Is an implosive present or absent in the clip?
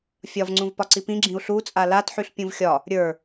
absent